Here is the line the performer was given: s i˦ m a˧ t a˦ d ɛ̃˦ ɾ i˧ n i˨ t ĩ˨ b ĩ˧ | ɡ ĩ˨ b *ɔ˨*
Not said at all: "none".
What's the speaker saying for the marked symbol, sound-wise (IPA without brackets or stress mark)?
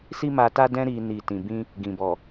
ɔ˨